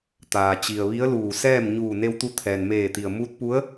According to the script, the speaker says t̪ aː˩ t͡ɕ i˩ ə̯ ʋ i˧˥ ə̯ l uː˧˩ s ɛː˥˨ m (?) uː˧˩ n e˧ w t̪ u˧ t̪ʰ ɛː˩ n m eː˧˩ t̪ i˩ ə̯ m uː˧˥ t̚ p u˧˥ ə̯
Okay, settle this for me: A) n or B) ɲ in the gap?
B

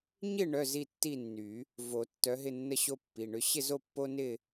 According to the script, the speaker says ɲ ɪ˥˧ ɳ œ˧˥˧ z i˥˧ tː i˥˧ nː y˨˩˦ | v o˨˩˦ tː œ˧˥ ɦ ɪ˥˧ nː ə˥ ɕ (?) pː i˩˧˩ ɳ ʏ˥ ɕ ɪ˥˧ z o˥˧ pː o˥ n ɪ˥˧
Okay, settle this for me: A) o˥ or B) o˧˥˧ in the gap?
A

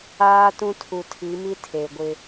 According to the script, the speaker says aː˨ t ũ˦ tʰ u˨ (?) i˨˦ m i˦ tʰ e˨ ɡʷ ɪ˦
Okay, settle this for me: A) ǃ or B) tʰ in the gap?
B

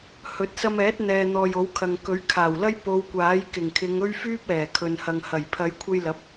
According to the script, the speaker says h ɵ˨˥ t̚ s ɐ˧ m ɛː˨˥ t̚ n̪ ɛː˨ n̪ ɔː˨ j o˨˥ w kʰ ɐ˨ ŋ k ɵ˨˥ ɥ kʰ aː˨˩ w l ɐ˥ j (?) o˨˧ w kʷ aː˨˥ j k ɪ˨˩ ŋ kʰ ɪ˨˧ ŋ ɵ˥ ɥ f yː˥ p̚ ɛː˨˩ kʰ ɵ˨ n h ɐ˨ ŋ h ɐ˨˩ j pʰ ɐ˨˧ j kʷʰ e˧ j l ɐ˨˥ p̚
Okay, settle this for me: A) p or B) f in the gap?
A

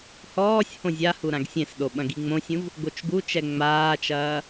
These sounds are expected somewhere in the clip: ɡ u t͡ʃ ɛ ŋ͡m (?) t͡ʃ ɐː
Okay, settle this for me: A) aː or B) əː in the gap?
A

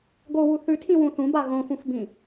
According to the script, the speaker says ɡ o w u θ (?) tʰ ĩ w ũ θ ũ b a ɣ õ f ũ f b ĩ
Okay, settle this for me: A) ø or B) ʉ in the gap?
B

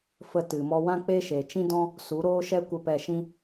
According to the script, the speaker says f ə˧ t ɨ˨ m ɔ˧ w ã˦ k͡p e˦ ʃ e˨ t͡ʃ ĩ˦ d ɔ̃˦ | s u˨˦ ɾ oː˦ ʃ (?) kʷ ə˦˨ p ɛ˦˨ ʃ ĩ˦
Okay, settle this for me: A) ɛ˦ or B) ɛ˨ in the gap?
A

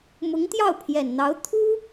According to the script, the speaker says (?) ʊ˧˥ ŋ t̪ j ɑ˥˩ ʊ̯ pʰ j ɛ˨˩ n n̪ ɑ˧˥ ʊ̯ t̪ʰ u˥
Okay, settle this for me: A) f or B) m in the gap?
B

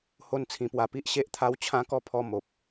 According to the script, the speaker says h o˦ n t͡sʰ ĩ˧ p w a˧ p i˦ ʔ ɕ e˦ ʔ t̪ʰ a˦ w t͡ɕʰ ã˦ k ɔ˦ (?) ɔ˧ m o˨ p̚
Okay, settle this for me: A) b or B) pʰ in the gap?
B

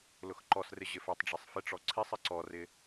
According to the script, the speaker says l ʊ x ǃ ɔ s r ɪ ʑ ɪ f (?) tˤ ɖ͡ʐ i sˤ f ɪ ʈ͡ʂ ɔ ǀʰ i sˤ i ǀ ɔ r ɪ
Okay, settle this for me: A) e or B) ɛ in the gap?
B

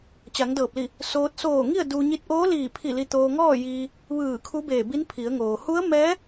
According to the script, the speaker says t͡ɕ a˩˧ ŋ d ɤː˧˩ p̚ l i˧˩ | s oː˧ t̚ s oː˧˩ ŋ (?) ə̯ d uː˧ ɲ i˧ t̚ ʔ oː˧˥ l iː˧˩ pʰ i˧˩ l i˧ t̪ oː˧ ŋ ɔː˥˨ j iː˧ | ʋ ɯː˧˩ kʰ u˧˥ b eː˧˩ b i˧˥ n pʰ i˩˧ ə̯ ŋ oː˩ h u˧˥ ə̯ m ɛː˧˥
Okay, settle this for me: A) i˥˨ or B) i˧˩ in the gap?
A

